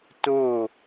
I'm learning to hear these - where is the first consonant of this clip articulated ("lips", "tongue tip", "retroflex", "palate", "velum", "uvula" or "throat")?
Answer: tongue tip